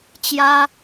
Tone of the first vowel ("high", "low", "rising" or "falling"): high